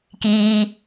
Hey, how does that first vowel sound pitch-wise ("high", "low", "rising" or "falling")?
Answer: low